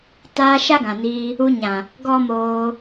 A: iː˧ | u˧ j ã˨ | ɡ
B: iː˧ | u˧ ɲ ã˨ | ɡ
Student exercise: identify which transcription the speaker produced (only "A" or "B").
B